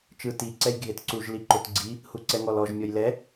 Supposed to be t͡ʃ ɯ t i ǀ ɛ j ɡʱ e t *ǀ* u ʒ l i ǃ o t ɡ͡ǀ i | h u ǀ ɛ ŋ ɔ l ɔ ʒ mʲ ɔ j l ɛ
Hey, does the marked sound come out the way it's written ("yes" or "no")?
yes